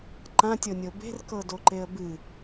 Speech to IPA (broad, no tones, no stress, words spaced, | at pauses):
ǃãtʲɤnʲɤ be̤rkɤdo ǃeə̯bɨ